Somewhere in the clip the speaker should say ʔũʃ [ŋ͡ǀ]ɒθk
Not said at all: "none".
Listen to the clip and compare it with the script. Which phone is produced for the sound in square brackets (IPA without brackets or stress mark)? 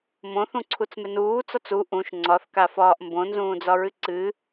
ŋ͡ǀ